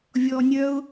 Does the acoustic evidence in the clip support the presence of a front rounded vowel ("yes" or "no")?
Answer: yes